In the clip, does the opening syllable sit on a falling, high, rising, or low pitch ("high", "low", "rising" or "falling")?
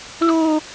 high